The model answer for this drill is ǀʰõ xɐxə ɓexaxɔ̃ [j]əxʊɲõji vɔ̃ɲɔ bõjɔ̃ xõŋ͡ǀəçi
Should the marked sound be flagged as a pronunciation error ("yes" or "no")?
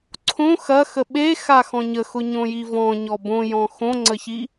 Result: yes